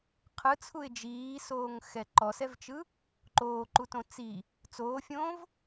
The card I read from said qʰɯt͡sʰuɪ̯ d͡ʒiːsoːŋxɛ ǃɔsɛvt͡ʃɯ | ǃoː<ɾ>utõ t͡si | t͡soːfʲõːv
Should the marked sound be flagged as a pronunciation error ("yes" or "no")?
yes